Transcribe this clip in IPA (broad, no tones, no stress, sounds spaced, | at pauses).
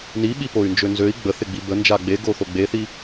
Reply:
n i ɓ i p o y̯ n d͡ʒ ø n z ø i̯ ɡ͡b ə θ ɪ ɡ͡b i b ə n d͡ʒ a ɡ͡b e ɡ o θ o ɡ͡b e θ i